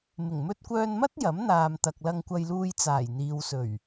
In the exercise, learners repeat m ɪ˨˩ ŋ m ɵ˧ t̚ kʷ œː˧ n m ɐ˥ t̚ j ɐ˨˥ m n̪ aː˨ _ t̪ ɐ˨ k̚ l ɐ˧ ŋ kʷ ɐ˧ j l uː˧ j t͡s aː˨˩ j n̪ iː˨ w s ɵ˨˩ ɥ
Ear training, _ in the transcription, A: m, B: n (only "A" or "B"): A